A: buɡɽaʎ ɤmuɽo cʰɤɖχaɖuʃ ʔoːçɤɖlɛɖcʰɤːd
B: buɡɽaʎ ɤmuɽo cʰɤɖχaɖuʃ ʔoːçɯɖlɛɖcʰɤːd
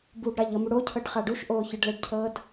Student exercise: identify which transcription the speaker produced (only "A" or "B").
B